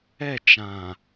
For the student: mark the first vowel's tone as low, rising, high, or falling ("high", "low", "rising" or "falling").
falling